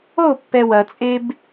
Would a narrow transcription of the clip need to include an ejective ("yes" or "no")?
yes